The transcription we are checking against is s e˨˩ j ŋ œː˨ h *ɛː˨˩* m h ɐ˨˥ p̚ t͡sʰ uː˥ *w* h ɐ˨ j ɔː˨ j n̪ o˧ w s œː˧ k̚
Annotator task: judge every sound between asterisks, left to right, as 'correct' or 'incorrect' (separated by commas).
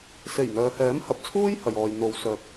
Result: incorrect, incorrect